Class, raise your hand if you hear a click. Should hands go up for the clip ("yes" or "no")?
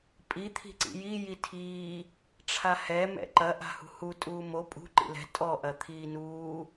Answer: yes